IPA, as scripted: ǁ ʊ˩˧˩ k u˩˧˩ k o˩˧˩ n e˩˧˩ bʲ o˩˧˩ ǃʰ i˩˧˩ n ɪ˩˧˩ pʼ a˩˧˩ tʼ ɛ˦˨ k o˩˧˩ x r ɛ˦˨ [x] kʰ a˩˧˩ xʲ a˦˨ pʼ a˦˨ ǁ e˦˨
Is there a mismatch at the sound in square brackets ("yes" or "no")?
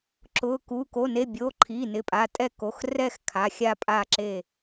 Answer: no